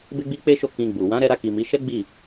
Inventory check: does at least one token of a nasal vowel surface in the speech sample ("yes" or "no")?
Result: yes